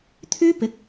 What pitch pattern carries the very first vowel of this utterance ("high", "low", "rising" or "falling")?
high